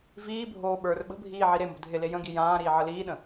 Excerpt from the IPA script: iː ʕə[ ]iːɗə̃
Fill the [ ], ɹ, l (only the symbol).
l